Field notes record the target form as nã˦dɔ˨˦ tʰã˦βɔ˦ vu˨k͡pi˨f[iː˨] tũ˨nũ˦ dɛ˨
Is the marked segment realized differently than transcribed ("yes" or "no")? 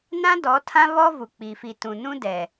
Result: yes